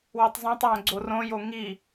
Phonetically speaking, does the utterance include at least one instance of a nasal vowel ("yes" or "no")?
yes